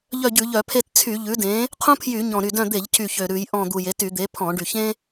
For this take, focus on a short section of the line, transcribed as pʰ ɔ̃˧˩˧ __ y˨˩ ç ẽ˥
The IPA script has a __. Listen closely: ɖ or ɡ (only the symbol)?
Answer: ɖ